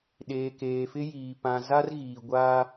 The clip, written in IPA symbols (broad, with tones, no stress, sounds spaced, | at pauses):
ɗ eː˨ k eː˨ f ɪ˦ j iː˨ p ã˨ z a˦ r ɣ iː˨ ɡʷ aː˦